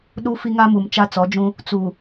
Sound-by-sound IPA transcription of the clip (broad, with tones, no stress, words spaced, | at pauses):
ɗu˦fi˦ŋa˦ mu˨mt͡ʃa˦t͡sɔ˨˦d͡ʒũ˦ | t͡su˨